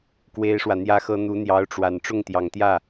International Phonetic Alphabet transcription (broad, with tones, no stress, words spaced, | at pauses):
kwe˥ɪ̯ʂwä˨ n̪jä˥xɤ˥ n̪u˧˥n̪jɑ˧˥ʊ̯ʈ͡ʂwa˨˩n ʈ͡ʂʊ˥˩ŋt̪jɑ˨˩ŋt̪jä˥˩